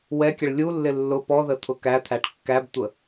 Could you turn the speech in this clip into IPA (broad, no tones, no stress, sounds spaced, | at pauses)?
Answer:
w ɛ kʲ ə ɭ lʲ u lː ɪ lː ʊ p ɔ ð ə t̪ʰ ʊ k æ t̪ʰ æ ʈ kː æ b tʷ ə